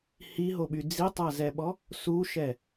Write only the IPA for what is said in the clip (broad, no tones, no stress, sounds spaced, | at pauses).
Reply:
h i ɦ o ɓ y d͡z i tˤ a z ɛ ɓ ɔ | s u ʃ ɛ